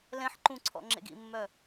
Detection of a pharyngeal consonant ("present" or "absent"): present